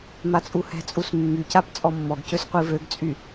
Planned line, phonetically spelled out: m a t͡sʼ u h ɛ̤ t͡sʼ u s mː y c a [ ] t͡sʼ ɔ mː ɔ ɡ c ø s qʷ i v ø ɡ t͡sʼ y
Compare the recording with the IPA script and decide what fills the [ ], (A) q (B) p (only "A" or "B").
B